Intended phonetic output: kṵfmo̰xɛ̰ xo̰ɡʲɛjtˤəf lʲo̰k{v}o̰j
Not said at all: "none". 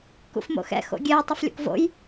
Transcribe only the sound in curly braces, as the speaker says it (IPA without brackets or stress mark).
v